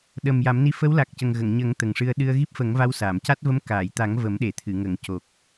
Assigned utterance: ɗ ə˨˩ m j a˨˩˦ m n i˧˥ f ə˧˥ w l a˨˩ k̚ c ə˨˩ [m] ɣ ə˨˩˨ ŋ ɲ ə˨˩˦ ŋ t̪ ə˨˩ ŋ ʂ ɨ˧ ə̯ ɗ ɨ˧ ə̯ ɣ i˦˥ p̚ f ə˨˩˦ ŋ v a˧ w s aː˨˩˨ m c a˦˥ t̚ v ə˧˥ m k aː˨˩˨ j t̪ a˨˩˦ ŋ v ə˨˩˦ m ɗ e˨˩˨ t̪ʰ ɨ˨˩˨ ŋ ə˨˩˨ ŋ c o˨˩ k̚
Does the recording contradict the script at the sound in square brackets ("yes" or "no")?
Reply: yes